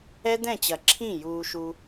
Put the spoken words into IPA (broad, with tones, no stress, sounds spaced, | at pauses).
ɛ˦ d̪ ɛ̃˦˨ t͡ɕ ɐ˨ ǁʰ ĩ˦˨ j uː˧ ʃ u˧